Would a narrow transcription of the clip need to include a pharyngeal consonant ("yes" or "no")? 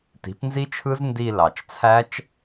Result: no